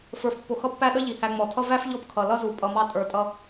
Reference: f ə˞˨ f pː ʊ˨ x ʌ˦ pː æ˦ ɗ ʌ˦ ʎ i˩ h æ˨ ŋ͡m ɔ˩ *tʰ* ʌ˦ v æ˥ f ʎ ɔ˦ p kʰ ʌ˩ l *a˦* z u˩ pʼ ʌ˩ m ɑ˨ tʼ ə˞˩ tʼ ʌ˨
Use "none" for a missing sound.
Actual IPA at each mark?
tʰ, ʌ˦

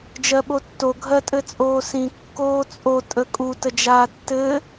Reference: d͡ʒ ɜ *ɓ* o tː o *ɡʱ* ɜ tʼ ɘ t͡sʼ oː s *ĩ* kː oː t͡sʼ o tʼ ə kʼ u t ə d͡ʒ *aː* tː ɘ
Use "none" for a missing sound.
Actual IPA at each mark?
ɓ, ɡʱ, ĩ, aː

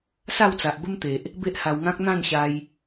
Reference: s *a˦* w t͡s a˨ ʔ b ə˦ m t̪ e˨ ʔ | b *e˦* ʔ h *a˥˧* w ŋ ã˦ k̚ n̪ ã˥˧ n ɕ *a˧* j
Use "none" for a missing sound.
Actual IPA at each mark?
a˥˧, e˦, a˧, a˧

